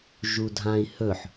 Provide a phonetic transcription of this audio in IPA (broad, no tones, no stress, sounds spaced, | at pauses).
ʒ u dʱ ã i̯ h ɵ ħ